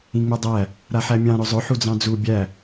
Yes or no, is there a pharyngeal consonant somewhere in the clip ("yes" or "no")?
yes